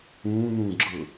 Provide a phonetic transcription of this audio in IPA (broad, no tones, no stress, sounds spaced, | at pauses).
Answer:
ũː n̪ ũː ɡ͡ǁ ɤ